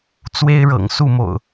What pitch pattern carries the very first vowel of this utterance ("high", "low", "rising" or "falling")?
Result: high